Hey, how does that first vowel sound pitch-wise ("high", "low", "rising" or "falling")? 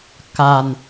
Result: low